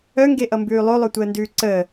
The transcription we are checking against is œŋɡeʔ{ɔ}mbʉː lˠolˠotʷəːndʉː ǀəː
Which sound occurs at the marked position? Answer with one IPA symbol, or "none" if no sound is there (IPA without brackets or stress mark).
ʌ